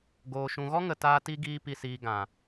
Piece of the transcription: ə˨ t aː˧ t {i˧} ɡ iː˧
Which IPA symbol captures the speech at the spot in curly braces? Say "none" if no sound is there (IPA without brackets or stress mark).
i˧